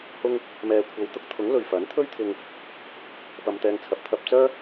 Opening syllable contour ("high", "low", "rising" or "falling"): high